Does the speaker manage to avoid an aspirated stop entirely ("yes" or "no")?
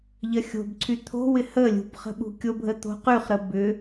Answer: no